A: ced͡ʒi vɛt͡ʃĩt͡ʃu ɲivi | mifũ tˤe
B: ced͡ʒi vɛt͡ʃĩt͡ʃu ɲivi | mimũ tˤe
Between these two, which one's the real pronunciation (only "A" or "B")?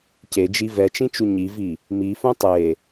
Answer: A